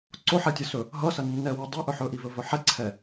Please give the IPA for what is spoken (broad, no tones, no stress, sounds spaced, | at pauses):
ǀ o ħ ɛ tʲ ʌ s ɵ | ɦ ʌ s ɐ nː ɛ w ʌ dˤ o ʔ ɵ ħ ɵ ʔ i v ɵ v ɵ ħ ɛ ǀʰ ɛ